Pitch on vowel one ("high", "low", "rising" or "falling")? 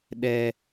high